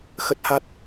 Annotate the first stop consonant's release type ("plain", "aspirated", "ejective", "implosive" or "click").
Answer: plain